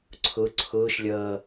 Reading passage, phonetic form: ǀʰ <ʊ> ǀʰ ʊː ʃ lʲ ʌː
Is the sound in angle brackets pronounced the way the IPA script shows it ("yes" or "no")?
yes